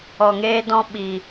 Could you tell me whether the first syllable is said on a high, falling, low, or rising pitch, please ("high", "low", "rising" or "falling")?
low